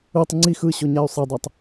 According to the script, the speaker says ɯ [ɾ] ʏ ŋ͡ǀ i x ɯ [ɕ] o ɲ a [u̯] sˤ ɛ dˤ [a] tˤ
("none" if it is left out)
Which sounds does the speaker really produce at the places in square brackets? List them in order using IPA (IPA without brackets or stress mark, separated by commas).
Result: tˤ, ɕ, y̯, a